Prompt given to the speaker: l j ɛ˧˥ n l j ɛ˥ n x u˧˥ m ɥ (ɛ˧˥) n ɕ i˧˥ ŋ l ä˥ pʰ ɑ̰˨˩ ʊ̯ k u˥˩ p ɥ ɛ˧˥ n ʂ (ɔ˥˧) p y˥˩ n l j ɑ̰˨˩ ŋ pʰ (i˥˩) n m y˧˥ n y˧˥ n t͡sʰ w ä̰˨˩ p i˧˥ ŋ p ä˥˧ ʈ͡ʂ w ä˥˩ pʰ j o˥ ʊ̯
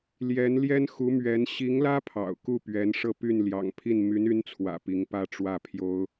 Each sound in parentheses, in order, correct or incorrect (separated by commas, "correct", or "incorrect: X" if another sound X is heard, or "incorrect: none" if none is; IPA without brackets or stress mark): correct, incorrect: ɤ˥˧, correct